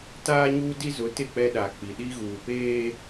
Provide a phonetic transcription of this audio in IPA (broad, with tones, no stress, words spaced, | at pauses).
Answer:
taː˦ɲuː˦ di˦zʊ˨˦tɪ˦˨k͡pɛ˦ ɗa˨k͡pi˨ ɗi˦ɣuː˨peː˦